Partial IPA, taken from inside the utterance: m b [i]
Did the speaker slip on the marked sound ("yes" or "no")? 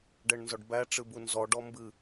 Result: yes